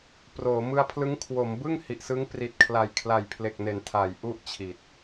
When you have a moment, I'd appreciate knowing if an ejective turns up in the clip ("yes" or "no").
no